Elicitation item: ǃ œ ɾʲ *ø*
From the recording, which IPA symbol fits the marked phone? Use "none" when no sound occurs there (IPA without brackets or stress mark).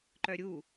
u